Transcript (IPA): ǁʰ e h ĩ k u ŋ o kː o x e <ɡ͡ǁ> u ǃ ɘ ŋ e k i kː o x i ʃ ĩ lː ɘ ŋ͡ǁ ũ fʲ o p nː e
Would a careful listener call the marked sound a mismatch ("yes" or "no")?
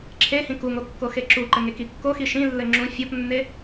yes